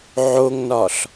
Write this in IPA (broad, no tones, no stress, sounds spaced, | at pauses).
ʕ o ŋ n ɒ ɬ